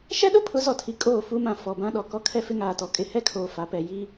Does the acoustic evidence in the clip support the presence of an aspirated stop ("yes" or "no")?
yes